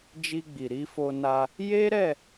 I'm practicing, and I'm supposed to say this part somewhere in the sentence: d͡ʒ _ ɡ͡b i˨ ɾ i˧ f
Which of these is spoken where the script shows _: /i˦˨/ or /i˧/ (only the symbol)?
i˧